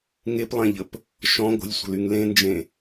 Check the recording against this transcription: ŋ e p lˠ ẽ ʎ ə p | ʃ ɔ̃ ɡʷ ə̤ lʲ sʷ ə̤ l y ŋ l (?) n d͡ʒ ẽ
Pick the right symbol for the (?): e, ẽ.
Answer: ẽ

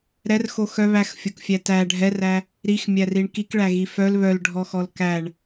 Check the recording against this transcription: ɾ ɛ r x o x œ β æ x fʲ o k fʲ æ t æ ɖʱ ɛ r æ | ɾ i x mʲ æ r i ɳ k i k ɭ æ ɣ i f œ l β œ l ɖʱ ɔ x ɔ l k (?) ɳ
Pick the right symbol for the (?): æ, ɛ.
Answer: æ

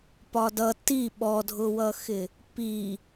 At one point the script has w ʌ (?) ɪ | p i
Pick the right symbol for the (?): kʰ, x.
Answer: x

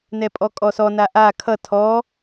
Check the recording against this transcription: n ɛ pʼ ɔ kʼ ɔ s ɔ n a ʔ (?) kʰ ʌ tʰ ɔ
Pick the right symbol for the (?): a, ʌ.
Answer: a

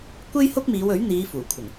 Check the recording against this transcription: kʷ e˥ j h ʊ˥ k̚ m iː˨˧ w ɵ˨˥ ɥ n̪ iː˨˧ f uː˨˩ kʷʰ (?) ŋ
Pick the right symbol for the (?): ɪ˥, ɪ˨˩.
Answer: ɪ˨˩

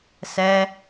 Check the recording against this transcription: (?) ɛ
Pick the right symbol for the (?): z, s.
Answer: s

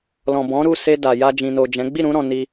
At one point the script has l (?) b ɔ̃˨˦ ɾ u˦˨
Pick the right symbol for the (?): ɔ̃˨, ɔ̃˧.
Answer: ɔ̃˨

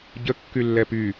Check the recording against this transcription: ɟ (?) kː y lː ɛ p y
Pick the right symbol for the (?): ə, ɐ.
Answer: ə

